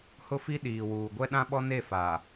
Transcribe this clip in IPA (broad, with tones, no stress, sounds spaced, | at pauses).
h ʊ˦ f i˦ ɗ iː˨ w uː˨ ɡʷ ɛ˦ ɗ ã˦ ɓ ɔ˦ n e˦˨ f a˨